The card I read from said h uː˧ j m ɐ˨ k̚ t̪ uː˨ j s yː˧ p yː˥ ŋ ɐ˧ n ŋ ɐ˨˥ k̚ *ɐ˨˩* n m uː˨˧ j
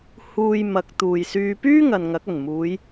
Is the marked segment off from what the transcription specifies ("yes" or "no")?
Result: no